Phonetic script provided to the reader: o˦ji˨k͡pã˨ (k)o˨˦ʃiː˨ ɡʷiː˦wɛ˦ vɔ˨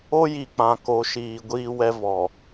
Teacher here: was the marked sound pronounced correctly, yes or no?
yes